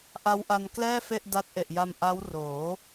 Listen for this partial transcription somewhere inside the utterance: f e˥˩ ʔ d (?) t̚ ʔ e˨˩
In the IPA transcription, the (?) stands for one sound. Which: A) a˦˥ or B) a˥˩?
A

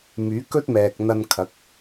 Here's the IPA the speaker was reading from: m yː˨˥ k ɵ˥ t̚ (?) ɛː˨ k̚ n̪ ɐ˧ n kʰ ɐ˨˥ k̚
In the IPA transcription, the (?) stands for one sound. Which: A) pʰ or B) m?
B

